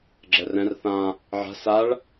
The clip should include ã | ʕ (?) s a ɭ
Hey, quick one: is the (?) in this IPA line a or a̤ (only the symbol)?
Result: a̤